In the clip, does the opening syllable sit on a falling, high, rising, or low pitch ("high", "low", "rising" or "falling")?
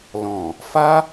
low